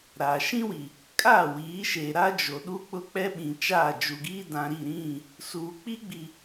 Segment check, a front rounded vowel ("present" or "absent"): absent